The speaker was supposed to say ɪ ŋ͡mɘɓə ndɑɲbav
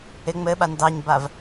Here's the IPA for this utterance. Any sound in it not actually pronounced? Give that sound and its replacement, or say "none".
ə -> a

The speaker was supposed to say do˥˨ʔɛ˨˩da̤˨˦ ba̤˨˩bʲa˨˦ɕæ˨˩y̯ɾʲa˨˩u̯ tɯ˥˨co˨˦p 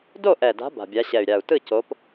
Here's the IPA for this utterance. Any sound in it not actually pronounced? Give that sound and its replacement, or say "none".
æ˨˩ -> ɛ˨˩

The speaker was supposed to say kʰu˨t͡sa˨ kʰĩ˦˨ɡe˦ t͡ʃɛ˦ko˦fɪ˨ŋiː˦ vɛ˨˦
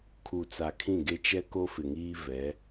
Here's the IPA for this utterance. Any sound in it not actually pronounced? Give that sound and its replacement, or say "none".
none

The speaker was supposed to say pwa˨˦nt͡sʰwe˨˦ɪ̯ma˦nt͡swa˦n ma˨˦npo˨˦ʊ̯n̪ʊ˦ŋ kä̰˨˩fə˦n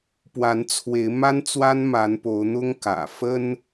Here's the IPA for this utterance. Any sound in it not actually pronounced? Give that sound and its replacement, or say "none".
none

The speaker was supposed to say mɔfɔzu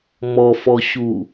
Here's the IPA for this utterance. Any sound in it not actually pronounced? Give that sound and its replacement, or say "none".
z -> ɕ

